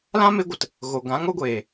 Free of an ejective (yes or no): yes